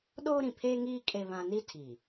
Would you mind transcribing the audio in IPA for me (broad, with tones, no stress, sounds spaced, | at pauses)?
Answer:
ɗ oː˦ ɾ ĩ˨ pʰ eː˦ ŋ iː˦ kʼ e˦ β ã˦ n i˦ tʰ iː˨